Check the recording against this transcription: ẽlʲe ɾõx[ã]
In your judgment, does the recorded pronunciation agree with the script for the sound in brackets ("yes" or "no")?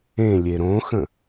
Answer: no